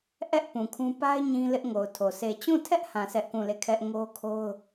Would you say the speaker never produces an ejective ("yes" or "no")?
yes